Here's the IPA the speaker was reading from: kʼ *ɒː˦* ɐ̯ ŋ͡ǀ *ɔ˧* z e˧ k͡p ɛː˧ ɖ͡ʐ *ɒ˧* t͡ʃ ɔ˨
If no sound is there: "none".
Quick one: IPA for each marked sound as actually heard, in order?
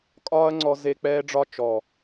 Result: ɒː˦, ɔ˧, ɒ˧

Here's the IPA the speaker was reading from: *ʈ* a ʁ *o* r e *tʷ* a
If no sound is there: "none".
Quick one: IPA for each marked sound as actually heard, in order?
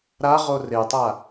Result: ɾ, o, tˤ

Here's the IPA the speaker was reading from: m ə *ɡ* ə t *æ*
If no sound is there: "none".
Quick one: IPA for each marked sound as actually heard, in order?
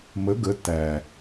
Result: ɡ, æ

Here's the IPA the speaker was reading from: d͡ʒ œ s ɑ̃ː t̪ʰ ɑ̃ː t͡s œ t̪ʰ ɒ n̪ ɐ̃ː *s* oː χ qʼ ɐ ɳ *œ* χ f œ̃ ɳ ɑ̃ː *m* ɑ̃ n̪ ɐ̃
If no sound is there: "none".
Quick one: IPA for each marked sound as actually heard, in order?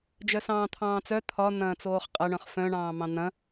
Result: t͡s, œ̃, m

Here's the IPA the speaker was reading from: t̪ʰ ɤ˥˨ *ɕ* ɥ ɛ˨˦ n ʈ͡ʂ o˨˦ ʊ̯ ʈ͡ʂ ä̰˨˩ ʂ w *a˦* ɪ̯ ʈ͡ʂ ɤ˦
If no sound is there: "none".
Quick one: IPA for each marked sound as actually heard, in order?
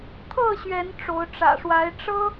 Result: ɕ, a˨˦

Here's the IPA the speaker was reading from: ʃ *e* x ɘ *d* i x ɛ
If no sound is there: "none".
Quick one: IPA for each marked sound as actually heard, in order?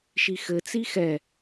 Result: i, t͡s

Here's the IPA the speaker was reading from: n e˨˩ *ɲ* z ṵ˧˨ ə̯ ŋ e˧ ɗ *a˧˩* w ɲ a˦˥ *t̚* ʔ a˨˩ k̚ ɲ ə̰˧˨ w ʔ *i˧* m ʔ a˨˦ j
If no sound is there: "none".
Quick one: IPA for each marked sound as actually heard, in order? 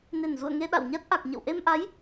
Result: n, a̰˧˨, t̚, e˧

